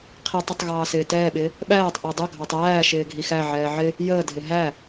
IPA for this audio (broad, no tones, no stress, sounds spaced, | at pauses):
qʰ i tˤ ə tˤ ɣ ɑː s ɪː t ɛː ɓ ɪː | ɓ æː tˤ ʔ ɪː dˤ ə ɡʱ ɑ tˤ æː ʃ ɪː ɡʱ i x æ ʕ ɛː ʕ ɪ | j əː dʱ ɪ ɦ æ